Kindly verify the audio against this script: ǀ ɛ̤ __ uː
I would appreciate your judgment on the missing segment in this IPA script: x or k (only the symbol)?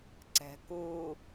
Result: k